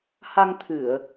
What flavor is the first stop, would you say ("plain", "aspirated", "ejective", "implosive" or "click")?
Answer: aspirated